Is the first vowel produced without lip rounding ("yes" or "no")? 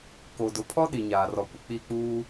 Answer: no